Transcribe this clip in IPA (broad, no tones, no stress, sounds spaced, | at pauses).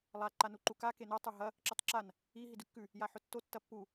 lˠ a ǃ a n u ǃ u k a k e n o tˤ u ɦ ɐ | ǁ ɵ tˤ ǁ a n | i ɦ i d ʉ kː ʉ | j a ħ ɵ tː o tː ɐ pː u